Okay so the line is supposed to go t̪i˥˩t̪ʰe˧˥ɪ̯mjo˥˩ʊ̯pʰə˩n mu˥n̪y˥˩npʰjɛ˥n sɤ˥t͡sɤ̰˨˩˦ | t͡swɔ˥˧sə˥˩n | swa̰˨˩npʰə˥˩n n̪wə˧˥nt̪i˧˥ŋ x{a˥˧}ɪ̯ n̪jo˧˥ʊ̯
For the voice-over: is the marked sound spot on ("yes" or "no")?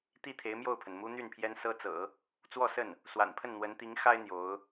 no